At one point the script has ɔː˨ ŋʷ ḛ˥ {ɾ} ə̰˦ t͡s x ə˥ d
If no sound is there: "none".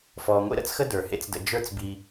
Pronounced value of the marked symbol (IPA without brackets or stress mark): ɾ